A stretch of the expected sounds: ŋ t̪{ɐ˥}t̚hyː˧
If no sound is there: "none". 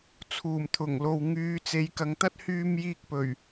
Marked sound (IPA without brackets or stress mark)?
ɐ˥